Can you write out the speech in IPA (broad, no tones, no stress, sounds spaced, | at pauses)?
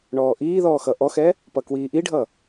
ɳ ɔː ʔ iː ð ɔː x ʌ ʔ ɔ x ɛ | p ʌ k w iː ʔ i ɖʱ ʌ